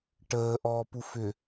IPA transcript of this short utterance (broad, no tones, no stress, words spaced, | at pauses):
ʈəː ʔɔːpufʏ